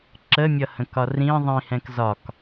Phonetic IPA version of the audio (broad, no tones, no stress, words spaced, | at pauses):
ǁəmʲʌ hə̃kɒrĩ ðˤĩhɛ̃k zɒk